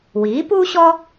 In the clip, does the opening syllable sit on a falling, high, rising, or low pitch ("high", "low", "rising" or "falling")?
rising